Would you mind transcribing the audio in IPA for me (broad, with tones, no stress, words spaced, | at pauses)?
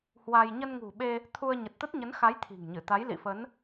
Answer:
hwa˧j ɲə˧nŋṳ˨˩ɓe˧ | t̪ʰu˧ə̯ ɲə˨˩t̚t̪ə˦˥t̚ɲə˨˦nxa˨˦j t̪ʰi̤˨˩ŋɲɨ˧˩t̪a˨˦j lḭ˧˨fə˨˦n